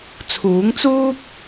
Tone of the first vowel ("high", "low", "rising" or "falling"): rising